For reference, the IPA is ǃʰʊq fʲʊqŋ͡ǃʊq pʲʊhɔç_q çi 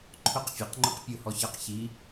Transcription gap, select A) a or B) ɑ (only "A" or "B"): B